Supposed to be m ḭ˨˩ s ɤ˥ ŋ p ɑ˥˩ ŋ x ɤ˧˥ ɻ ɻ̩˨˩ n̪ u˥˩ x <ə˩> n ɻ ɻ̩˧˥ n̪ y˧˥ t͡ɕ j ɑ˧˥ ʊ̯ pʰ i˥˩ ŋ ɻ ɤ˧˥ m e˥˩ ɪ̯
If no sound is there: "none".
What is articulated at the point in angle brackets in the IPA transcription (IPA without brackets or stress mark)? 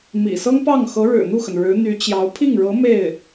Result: ə˩